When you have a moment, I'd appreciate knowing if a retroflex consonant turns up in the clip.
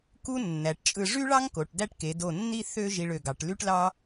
yes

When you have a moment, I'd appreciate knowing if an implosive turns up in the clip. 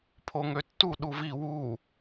yes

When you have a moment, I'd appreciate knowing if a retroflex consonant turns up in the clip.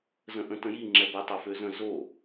no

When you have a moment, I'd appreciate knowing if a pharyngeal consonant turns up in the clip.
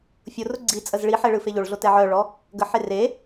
yes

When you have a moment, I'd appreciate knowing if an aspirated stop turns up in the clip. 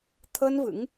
yes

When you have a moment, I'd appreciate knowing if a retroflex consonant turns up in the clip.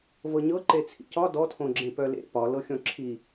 no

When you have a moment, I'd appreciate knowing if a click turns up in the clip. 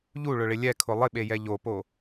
no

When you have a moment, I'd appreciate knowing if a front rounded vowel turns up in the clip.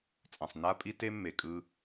no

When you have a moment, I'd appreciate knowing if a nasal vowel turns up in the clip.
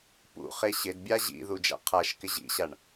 no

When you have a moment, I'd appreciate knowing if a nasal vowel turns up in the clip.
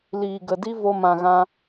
yes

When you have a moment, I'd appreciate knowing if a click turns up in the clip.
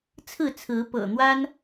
no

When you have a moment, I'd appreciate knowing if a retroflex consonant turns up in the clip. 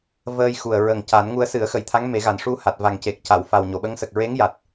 yes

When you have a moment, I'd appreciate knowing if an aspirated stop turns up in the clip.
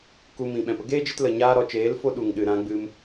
no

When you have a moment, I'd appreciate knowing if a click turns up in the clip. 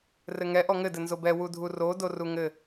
no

